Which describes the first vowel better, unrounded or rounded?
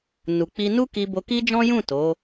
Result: rounded